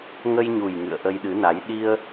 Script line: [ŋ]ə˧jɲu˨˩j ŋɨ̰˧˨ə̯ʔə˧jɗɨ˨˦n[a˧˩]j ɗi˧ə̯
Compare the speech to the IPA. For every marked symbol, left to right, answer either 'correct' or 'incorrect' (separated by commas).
correct, incorrect